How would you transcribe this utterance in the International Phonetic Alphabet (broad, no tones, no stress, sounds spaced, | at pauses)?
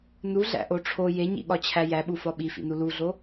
n u ɮ æ̰ ʔ o ʈ͡ʂʰ o j e ɲ ḭ ɠ ɒ t͡ɕʰ æ j æ ɓ u f ɒ ɓ i f ḭ n u l u ɮ o